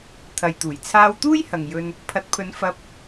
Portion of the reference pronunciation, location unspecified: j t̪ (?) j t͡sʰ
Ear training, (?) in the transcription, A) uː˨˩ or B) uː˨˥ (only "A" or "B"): A